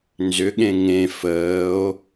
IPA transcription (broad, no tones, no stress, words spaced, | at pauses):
nzʏɠẽ ŋẽ fəːo̯